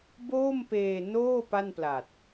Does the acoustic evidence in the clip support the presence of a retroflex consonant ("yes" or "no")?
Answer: no